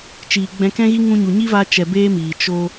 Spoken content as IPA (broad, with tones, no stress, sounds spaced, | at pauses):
t͡ʃ iː˨ ɡ͡b ɛ̃˧ k ɛ̃˦ ɣ i˦ ŋ ũ˧ ɲ u˨ ɲ i˦ v a˦ t͡ʃ ɛ˧ b eː˦ m iː˨ t͡ʃ o˧